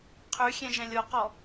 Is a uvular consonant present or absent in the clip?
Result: present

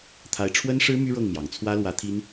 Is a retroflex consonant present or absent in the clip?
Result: present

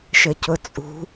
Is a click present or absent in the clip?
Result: absent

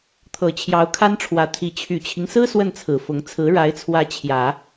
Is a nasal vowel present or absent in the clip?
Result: absent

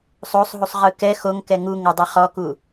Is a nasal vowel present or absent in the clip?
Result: absent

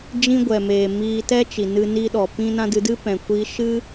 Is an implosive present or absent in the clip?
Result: present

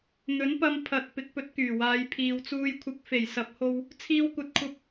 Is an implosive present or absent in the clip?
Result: absent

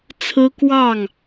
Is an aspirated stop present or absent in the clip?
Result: present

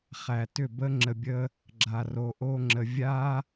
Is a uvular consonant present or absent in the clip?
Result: present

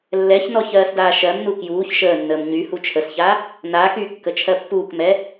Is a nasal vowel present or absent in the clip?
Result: absent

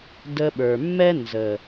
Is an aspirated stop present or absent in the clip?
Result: absent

